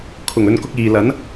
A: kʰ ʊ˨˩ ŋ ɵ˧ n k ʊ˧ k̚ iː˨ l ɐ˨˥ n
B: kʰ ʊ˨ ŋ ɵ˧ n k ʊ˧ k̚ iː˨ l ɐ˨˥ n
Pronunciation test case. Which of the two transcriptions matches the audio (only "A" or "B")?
A